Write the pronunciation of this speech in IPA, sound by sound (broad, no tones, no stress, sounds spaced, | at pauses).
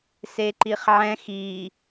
s e ǃ i χ ʕ ɛ̃ x i